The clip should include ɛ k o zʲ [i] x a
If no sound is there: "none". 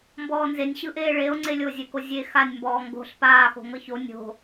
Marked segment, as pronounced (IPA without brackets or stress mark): e